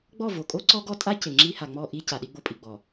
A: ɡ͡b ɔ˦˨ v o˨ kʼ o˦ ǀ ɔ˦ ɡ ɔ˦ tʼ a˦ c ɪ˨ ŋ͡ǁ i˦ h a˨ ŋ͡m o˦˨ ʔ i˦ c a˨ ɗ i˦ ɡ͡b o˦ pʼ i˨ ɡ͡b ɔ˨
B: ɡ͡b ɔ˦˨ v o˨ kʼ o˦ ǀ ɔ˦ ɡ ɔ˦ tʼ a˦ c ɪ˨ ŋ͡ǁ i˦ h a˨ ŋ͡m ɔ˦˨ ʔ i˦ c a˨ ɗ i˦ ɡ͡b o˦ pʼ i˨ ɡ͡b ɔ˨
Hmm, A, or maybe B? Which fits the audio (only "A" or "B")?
B